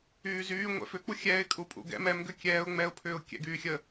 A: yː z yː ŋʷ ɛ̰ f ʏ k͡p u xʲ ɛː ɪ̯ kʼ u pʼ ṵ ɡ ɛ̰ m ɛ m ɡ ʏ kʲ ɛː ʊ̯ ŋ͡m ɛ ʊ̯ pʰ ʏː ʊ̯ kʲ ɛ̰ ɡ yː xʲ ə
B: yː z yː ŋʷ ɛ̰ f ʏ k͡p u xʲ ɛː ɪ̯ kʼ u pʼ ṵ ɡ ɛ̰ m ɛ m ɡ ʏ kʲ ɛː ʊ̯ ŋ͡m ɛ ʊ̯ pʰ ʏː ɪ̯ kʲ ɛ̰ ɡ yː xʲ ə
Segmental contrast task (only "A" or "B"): A